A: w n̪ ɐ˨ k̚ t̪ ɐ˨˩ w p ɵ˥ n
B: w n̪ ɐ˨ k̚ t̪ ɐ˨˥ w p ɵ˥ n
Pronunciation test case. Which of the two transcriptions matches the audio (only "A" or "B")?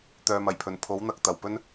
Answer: A